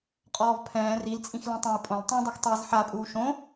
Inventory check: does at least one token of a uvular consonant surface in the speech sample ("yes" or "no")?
yes